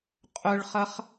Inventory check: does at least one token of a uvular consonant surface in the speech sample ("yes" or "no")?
yes